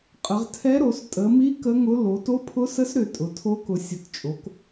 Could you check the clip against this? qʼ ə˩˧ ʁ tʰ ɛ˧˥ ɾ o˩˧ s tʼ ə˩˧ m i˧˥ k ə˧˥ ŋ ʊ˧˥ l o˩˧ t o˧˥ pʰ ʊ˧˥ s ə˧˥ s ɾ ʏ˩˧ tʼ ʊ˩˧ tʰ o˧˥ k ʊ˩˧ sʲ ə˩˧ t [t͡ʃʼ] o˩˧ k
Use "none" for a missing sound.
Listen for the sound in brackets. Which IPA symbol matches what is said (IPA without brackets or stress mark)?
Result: t͡ʃʼ